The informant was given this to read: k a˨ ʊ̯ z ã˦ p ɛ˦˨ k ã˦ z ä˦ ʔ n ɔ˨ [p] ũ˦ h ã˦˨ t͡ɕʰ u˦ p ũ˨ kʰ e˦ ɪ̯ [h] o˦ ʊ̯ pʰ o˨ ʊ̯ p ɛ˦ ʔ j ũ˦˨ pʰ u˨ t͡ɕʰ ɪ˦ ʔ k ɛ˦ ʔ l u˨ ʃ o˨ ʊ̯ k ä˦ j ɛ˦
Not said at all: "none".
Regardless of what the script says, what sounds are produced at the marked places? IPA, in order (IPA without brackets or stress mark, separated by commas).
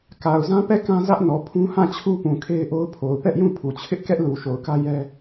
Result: pʰ, ʔ